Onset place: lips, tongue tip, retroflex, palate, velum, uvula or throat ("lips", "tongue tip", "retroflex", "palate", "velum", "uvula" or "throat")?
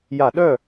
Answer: palate